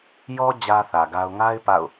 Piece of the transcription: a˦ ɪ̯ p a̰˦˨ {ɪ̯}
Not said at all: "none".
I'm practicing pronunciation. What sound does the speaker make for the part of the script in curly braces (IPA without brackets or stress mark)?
ʊ̯